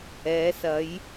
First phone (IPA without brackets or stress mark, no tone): ɛː